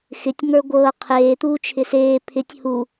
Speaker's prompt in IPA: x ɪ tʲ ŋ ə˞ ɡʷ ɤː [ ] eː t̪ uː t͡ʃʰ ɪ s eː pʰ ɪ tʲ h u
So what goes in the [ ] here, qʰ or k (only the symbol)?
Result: qʰ